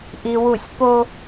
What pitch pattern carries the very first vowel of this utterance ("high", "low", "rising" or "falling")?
high